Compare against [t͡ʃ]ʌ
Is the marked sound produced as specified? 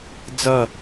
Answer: no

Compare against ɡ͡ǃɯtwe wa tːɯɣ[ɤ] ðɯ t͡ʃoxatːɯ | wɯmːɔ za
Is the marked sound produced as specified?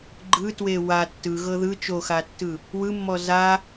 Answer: yes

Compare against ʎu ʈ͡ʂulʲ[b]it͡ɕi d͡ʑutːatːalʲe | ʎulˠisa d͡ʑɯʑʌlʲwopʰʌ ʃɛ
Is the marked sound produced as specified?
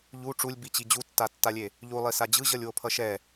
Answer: yes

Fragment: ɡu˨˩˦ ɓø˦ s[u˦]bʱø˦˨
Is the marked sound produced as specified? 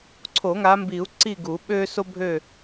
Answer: no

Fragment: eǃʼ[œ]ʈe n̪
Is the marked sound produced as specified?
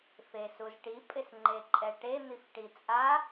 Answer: no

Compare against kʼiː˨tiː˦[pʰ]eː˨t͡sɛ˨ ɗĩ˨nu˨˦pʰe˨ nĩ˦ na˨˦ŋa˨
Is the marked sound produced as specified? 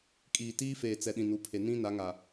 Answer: no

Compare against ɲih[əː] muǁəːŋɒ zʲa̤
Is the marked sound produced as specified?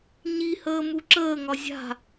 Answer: yes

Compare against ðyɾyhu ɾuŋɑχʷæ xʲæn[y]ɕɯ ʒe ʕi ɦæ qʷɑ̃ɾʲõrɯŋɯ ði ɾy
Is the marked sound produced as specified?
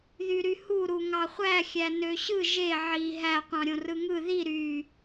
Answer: no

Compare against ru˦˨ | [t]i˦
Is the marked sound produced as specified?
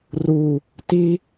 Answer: yes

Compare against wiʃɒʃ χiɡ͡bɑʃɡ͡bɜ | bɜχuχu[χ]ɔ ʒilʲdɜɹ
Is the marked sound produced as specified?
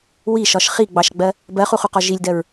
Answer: no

